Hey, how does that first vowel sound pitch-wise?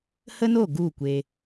high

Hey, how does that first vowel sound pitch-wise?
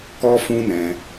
high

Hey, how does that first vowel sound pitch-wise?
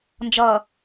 low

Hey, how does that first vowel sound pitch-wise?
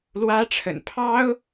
high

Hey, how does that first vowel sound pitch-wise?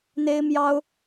high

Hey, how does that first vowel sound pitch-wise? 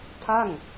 falling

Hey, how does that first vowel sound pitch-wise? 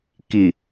low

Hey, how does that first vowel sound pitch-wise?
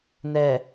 low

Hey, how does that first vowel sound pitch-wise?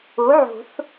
rising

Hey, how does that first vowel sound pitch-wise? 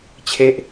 falling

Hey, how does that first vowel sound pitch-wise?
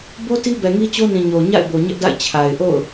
high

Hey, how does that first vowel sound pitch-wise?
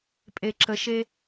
low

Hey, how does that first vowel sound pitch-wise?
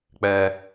high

